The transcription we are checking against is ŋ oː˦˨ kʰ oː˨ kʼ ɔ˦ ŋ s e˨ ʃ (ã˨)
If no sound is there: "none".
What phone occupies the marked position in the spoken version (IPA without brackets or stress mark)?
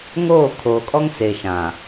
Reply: ã˨